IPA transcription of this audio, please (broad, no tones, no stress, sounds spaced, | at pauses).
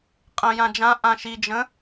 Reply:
qʼ ə̃ j ã d͡ʒ ã ʔ ã ʃ i d͡ʒ ə̃